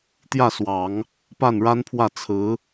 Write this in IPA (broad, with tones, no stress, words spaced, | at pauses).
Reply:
t̪jä˥˩swɑ˨˩˦ŋ | pa˥˩nɻa˥npʰwä˥˩ t͡sʰɹ̩˧˥